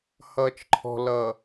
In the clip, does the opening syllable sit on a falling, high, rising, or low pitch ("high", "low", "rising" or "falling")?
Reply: low